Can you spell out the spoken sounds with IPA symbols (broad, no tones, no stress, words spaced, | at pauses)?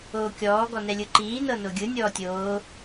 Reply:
oːkʲɔː ɡɔnɛlʲɯǃiː nɤnoɡʲɯ nʲɔːtʲoː